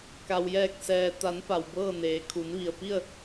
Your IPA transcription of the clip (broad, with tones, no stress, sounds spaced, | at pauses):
k a˩ w j ɛː˧˩ k̚ s ɛː˩ t̪ a˩˧ n p a˩ w b ɤː˥˨ n eː˩ kʰ u˩˧ n ʋ i˩ ə̯ p i˥˨ ə̯